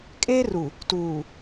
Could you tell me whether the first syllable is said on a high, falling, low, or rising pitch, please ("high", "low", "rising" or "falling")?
high